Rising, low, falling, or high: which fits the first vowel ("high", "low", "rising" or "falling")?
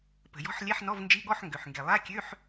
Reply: low